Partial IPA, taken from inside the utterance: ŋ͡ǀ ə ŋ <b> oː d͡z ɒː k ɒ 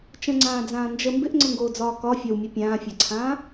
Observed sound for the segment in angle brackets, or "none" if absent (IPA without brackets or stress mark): ɡ